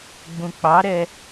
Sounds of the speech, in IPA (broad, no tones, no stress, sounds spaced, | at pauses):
ɡ͡b ũ k͡p ɑ ɾ ɛ